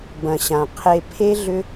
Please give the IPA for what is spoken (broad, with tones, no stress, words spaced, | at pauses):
bɐ̃˨ɕã˨ qʰe˧ pʰe˦ɮʏ˦